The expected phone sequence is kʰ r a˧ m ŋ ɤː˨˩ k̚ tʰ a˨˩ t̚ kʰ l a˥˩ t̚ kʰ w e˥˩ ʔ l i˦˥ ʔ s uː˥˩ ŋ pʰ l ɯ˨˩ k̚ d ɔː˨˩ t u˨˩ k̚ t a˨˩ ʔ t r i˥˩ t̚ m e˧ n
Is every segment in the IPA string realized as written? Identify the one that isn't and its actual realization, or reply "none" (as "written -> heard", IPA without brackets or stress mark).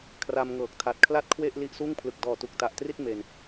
none